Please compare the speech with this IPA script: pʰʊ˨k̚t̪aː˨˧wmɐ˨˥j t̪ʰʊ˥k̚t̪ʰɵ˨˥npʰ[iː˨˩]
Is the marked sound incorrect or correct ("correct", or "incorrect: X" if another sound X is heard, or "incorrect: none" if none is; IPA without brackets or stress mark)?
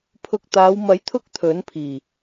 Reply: correct